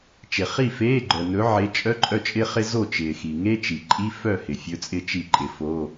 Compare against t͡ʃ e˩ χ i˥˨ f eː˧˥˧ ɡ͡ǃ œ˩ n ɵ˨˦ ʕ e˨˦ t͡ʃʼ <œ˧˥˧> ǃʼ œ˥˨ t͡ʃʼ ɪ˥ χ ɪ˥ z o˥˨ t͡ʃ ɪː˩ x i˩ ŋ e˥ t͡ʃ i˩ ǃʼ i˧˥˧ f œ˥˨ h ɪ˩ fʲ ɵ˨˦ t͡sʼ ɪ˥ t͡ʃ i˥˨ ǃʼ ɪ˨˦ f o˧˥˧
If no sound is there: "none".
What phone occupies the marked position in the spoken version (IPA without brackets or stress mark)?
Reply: œ˧˥˧